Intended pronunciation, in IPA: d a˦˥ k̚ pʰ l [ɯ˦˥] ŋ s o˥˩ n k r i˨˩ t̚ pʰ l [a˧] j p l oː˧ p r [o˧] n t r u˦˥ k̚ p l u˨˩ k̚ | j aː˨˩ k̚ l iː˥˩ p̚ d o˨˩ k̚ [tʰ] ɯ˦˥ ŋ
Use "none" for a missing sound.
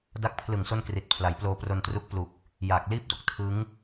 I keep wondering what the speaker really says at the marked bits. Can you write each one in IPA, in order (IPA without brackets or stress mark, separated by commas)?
ɯ˨˩, a˩˦, o˧, tʰ